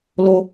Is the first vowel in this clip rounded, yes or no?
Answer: yes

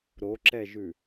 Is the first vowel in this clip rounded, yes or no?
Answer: yes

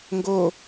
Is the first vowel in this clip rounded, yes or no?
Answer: yes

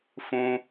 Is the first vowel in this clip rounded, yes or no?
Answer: yes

